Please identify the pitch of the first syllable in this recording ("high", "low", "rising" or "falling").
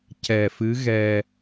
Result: low